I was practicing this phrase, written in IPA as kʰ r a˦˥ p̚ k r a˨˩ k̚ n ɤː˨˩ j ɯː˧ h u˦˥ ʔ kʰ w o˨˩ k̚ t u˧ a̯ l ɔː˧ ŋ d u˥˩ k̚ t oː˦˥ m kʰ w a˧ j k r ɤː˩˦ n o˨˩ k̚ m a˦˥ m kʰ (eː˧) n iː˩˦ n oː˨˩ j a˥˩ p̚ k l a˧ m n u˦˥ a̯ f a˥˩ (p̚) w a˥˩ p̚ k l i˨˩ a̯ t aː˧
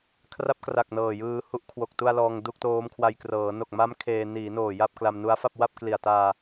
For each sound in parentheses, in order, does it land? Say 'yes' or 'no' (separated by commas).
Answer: yes, yes